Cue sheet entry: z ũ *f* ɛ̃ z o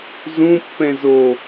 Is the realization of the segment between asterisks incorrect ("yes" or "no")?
yes